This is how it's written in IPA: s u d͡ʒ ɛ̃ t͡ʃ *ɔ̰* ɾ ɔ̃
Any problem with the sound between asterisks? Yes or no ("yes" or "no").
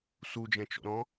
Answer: no